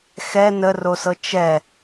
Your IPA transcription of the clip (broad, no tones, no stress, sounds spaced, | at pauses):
x ɛ n ə r o s ɤ t͡ʃ ɛ